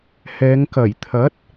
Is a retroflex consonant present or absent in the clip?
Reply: absent